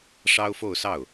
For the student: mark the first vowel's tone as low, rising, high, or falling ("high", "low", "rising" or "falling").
high